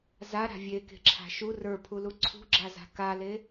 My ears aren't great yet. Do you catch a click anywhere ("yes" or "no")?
yes